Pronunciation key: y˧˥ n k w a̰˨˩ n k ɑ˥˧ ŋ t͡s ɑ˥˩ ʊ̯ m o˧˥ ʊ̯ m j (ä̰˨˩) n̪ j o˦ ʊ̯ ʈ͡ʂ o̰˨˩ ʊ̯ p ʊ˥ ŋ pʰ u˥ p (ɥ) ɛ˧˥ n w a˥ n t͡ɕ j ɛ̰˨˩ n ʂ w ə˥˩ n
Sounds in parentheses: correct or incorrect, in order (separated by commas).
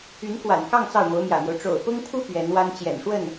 correct, correct